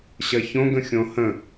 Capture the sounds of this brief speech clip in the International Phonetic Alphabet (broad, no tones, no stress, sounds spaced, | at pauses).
ɕ ɐ ç õ ɡ ə̃ xʲ õ h ə̃